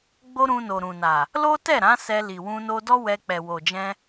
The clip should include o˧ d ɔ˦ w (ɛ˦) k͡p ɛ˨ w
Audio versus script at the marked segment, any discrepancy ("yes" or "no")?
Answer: yes